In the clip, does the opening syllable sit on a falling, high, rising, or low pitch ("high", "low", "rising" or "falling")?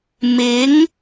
rising